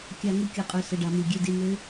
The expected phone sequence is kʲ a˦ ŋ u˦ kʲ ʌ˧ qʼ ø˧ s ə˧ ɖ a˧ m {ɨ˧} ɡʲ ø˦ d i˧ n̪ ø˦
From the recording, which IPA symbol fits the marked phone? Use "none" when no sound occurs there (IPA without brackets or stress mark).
i˧